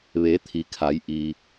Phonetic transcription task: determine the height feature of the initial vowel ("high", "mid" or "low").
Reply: mid